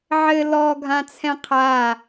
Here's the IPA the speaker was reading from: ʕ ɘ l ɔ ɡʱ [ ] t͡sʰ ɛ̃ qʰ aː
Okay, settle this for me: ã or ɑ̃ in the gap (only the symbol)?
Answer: ã